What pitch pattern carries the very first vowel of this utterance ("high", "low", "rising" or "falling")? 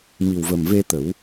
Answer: low